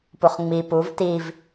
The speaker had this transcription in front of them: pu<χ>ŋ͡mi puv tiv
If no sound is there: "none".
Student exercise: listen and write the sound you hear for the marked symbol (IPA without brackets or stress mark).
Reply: χ